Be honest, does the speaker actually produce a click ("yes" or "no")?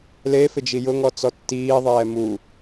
no